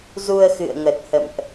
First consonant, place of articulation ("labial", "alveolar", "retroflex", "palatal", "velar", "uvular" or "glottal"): alveolar